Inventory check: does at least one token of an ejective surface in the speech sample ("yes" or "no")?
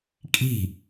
yes